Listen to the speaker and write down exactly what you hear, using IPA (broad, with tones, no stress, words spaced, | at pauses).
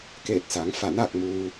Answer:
keː˧˩t̚sa˩˧ŋ fa˧˩naː˥˨k̚muː˧